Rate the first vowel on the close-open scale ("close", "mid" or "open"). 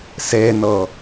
mid